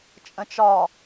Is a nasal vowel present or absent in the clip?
present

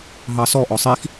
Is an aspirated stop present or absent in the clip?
absent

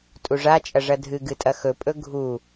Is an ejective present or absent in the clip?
present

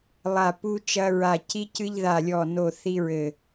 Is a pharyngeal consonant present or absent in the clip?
absent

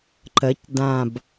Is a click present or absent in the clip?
present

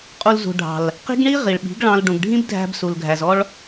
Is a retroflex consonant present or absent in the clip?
present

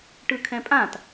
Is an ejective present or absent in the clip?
present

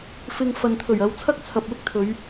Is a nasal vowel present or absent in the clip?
absent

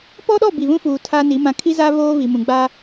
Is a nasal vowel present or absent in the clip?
present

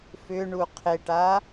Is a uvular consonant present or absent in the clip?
present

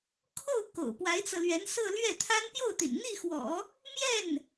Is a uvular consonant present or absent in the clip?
absent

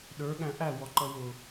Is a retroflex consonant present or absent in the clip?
absent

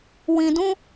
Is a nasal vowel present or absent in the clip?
present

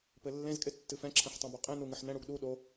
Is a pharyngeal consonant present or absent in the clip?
present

